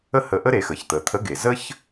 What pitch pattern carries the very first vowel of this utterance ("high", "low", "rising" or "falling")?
high